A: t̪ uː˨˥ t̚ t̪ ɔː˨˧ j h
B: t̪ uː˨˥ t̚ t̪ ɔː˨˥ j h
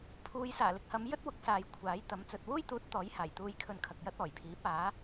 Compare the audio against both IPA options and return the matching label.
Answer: B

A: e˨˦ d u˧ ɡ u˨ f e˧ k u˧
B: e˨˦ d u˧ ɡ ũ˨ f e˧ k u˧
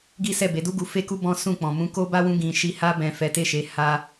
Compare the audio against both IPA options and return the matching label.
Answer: A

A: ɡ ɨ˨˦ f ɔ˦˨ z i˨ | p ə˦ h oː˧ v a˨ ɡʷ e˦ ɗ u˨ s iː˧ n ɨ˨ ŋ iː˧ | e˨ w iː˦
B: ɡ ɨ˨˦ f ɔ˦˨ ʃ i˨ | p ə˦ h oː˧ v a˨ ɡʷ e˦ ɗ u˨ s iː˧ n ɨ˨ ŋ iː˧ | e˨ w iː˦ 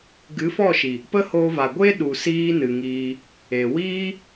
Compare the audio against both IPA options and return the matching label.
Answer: B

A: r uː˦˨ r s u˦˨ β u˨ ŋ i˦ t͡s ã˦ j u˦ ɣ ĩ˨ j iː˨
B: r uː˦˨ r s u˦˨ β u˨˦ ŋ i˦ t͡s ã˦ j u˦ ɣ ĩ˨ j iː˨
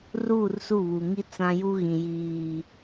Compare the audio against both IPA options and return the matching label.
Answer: A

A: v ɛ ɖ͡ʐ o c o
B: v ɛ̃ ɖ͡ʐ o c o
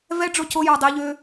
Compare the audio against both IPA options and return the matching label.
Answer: A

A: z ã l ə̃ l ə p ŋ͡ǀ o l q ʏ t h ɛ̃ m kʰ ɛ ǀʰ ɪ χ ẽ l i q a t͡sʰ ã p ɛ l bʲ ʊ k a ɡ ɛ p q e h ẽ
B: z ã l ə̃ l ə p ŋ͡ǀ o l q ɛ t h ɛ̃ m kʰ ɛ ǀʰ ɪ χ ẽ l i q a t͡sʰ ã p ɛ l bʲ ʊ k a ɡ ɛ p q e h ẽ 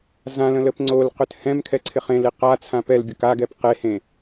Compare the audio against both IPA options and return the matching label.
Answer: A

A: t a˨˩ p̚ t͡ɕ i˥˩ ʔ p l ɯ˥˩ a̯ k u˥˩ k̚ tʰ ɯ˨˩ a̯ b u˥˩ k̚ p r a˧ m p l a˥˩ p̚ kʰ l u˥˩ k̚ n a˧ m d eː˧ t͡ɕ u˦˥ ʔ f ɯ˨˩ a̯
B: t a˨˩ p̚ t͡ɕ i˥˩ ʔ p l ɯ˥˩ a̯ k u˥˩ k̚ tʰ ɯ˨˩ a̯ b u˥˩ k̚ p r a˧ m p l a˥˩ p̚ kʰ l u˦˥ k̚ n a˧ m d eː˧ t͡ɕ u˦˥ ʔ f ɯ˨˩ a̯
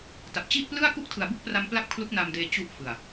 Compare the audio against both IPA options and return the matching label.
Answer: B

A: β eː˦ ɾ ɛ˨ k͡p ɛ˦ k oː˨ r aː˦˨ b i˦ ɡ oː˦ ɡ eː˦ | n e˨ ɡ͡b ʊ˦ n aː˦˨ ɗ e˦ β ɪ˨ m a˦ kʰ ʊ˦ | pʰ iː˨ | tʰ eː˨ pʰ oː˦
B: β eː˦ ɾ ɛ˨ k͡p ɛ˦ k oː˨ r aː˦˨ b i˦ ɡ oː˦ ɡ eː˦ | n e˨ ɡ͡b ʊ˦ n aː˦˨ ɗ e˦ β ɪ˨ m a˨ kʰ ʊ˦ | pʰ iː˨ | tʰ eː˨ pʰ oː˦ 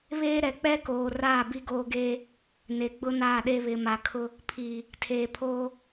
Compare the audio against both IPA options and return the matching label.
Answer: B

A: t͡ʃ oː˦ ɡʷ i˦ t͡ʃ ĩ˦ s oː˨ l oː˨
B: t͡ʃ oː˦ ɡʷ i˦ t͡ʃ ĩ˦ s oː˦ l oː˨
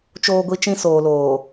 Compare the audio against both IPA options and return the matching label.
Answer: A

